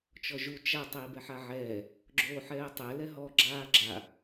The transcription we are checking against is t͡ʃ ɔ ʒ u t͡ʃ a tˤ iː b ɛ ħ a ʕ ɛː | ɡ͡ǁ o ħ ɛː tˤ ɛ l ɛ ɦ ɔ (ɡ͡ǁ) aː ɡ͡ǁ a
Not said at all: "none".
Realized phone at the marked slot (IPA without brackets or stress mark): ɡ͡ǁ